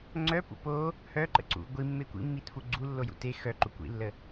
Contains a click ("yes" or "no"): yes